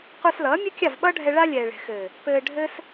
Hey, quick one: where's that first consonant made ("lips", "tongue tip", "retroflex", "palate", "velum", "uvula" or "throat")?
uvula